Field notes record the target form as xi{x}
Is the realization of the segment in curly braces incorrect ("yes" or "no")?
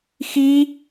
yes